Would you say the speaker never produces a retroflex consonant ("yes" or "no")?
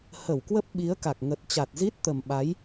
yes